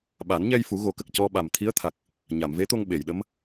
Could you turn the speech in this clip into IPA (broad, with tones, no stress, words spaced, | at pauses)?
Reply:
ɓa˨˩˦nɲɛ˧jfu˨˩˦ ɣo˨˩˦kə˨˩k̚ cɔ˧ɓa˨˩mt̪ʰi˧˥ə̯t̪ʰa˨˩k̚ | ɲa˨˩˨mve˧˥t̪o˧ŋ ɓe˨˩˨jɗə˧˥m